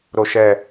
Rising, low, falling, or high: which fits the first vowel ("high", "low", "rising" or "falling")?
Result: falling